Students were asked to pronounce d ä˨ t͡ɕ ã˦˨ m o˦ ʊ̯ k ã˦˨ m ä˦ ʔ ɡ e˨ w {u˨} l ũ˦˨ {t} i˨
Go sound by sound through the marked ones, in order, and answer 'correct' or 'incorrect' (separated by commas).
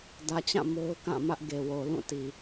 incorrect, correct